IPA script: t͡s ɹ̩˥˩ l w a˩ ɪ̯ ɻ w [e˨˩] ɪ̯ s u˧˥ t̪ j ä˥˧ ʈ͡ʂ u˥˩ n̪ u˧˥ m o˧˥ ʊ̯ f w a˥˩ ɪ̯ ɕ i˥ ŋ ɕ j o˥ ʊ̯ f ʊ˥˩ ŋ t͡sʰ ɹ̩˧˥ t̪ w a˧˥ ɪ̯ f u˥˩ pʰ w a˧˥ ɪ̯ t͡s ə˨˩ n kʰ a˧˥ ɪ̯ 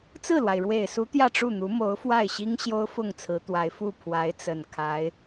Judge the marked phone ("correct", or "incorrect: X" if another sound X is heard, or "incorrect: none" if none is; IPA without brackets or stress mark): correct